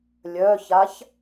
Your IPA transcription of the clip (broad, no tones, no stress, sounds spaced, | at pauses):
lʲ œ ç a ç